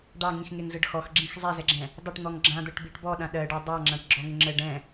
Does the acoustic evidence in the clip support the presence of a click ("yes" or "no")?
yes